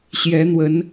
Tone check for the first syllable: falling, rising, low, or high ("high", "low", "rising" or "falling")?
rising